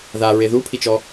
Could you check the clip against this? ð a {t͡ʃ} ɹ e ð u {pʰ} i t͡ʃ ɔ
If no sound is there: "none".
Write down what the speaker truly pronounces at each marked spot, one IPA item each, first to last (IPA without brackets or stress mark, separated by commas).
none, pʰ